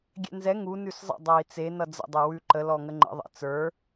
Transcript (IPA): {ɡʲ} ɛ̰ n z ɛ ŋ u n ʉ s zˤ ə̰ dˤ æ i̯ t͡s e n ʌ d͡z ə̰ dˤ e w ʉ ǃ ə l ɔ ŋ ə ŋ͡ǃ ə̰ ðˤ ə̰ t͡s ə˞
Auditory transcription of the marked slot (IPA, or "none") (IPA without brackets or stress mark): ɡʲ